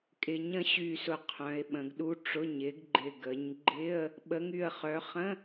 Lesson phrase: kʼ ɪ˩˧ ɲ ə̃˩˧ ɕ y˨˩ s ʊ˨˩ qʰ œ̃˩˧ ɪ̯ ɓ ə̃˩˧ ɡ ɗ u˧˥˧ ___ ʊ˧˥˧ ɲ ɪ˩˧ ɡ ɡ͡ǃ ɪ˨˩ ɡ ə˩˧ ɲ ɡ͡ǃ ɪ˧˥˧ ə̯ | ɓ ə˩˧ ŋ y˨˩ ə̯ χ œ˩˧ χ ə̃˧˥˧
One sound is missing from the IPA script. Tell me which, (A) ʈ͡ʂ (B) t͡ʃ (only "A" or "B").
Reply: A